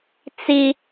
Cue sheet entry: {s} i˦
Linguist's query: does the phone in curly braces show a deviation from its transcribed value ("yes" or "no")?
yes